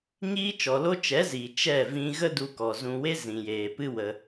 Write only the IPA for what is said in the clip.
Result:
ɲ iː˦ t͡ʃ ɔ˨ l o˦ t͡ʃ ɛ˨˦ z iː˨ t͡ʃ ɛ˦˨ v ĩ˧ ɣ ə˦ d u˧ k ɔ˨ z ũ˧ w e˦ z ĩ˨ j eː˨ p ɨ˦ w ə˧

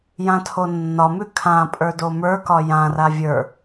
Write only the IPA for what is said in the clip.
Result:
j ã tʰ o nː ɒ m ʉ kʰ ã pʼ ə˞ d o m ə˞ k ɒ j ã r a vʲ ə˞

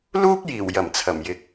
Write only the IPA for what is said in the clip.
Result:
l uː˥ k̚ j iː˨˩ w j ɐ˨˩ m t͡sʰ ɐ˨˩ m j ɪ˨ k̚

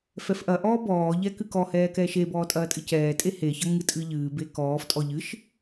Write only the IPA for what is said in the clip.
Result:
f ɛ f ʔ ɐ ʔ ɔː b ɔː ʎ ɛ k ɨ k ɔ h ɛː k ɛ ʃ e b ɔː tʼ ɐː tʼ ɨ c ɛː tʼ e h e ç ɐ ŋ ɨ tʼ ɨ ʎ ɨː b e k ɔː f tʼ ɔ ʎ ɨ ʃ

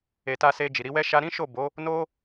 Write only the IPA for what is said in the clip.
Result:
e˨ t a˧ s e˧ d͡ʒ i˨ ɾ i˧ w ɛ˦ ʃ a˧ ɾ ĩ˦ ʃ o˦˨ b o˨˦ | n o˦

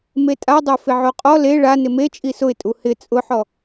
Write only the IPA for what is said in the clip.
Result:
m e tʼ a dˤ o f ɪ ʕ o qʼ ɔ l e ɭ a n ɪ m e t͡ʃʼ i s ʊ ɪ̯ tʼ u h ɪ t͡sʼ ʊ ħ ɔ

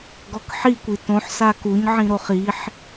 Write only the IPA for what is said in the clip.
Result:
ɡ ɔ k ħ i kʷ i t õ ħ s a k u ɲ ʕ ĩ ɾ o χ i ħ

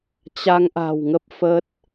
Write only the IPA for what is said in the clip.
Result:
t͡ɕ a˧ ŋ ʔ a̤˨˩ w ŋ ə˦˥ p̚ f ə˦˥ t̚

